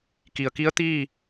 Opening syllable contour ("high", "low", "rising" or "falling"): low